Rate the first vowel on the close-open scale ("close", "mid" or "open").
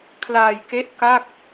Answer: open